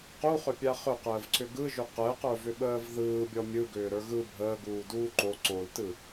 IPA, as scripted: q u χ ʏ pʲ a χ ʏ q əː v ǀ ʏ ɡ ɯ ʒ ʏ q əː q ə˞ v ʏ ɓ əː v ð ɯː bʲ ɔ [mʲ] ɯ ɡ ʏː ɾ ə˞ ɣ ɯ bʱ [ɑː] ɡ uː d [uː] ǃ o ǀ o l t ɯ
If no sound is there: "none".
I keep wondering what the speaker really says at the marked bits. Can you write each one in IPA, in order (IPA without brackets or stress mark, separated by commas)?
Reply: mʲ, əː, uː